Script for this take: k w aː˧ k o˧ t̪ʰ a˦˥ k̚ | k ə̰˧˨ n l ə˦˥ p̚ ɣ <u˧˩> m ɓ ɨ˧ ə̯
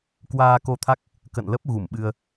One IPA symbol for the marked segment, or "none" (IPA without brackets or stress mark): u˧˩